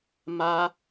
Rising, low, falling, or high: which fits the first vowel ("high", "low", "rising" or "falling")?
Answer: high